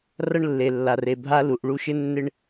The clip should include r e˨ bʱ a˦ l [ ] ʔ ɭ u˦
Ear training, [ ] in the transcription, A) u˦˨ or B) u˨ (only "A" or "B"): B